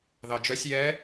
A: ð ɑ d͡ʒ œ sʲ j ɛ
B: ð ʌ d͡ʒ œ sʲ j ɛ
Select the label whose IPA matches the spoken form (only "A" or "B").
A